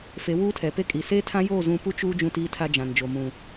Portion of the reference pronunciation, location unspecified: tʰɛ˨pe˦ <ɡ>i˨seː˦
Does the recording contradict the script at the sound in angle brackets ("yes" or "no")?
yes